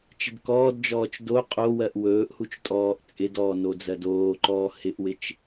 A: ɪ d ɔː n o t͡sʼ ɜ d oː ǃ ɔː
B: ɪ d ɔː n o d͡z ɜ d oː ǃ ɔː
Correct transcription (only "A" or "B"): B